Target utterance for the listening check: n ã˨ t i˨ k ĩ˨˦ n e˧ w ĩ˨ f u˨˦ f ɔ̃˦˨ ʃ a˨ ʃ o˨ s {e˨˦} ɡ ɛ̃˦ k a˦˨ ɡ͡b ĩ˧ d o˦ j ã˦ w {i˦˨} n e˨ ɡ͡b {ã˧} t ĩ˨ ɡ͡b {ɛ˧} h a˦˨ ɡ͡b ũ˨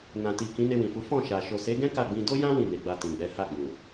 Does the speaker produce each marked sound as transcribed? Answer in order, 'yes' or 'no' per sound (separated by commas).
yes, no, no, no